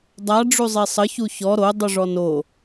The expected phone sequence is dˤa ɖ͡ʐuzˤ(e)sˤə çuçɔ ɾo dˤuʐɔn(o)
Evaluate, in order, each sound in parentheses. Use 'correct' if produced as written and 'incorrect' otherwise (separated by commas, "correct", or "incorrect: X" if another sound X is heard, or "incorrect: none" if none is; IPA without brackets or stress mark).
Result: correct, correct